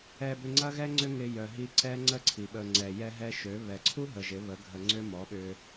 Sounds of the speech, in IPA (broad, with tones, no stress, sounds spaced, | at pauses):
ɛ˧ b ʏ˧ ŋ͡ǀ ɐ˦ ɣ ɛ˦ ŋ͡ǀ ʏ˦ ŋ ɪ˧ j œ˨ ɦ i˧ ǀ ɛ˦ ŋ͡ǀ ə˦ ǀʰ i˨ ɓ ə˨ ŋ͡ǀ ɛ˨ j ɛ˧ ɦ ɛ˧ ʃ ø˨˦ β ɛ˨ ǀʰ u˦ ɦ ə˨ ʒ ɪ˨˦ β ə˨˦ ɡʱ ə˧ ŋ͡ǀ ʏ˦ m ɔ˨˦ ɓ ʏ˧